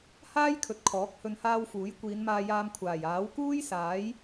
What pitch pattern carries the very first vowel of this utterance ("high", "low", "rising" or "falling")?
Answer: high